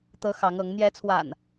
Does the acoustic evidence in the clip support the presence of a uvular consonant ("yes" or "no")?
no